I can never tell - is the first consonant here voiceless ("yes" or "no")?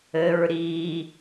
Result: no